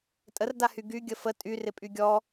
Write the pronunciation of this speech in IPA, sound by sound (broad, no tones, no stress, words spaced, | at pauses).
tʼərdahy ɡy ɡʲəfə tʼy rɪpʼyɡʲɔ